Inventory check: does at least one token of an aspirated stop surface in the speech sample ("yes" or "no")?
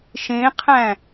yes